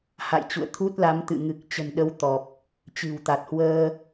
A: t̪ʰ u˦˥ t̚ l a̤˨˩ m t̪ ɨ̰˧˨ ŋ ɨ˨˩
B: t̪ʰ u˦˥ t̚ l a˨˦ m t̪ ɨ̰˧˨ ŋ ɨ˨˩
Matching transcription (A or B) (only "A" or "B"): B